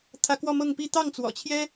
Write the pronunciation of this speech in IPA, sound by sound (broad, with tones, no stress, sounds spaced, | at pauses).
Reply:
t̪ʰ ä˥ k w ɔ˥˧ m ɤ˥˧ ŋ p i˥˧ t̪ ɑ˥˩ ŋ t͡s w ɔ̰˨˩ t͡ɕʰ j ɛ˥